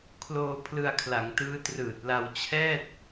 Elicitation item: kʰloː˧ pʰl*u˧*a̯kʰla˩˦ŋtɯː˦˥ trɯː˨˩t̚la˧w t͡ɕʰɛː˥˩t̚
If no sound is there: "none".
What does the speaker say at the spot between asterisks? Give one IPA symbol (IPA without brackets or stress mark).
ɯ˧